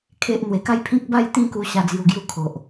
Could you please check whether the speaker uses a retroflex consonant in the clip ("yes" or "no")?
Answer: no